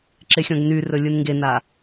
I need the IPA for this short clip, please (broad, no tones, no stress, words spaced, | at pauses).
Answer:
ǁexʲɔ̃ɡnyrɵ lʲɯnŋɡena